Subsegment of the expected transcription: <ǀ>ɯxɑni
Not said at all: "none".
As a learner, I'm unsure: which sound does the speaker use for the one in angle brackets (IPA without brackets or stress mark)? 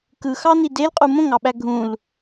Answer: k